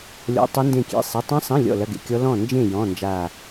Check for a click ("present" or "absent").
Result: absent